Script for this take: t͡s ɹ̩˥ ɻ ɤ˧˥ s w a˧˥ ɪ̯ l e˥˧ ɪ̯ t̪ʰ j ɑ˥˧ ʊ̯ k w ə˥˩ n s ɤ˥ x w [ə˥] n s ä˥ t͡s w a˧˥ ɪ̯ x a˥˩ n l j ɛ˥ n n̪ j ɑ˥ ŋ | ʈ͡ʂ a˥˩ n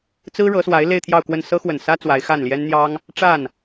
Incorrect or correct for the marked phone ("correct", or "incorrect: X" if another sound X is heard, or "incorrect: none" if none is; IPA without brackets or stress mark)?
incorrect: ə˨˩